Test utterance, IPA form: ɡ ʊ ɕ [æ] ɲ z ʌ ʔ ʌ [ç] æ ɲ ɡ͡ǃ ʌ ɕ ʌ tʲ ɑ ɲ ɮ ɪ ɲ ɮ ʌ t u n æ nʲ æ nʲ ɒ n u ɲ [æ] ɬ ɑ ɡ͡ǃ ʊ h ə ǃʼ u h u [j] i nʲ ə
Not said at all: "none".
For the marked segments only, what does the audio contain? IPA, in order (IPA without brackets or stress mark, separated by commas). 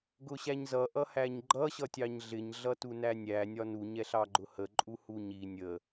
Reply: æ, h, ɛ, ɲ